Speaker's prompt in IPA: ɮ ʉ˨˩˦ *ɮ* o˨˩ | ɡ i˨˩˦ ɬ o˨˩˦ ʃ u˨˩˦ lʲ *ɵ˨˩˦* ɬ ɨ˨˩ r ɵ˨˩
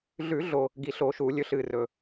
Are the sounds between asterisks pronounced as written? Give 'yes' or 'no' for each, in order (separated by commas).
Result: yes, yes